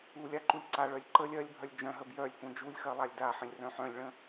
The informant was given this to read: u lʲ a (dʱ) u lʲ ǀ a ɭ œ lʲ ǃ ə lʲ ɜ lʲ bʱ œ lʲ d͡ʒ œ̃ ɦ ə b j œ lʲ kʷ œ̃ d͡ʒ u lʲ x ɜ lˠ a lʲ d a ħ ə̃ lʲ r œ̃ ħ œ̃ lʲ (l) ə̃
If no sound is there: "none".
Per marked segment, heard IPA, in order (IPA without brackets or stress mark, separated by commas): ǃ, ɭ